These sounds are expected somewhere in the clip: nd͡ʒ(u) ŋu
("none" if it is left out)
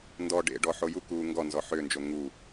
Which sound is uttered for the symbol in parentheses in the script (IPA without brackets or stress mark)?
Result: o